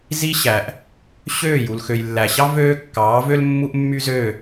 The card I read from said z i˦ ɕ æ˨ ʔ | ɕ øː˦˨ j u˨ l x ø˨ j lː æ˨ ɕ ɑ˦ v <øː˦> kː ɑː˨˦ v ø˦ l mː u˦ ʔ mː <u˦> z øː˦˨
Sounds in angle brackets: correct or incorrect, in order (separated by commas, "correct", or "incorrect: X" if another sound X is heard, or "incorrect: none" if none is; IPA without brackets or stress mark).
correct, incorrect: y˦